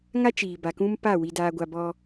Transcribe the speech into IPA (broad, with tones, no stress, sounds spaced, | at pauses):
ŋ a˦ t͡ʃ iː˨ b a˨ k ũ˦ m p a˦˨ w i˨ d aː˨ ɡʷ a˨ b ɔ˦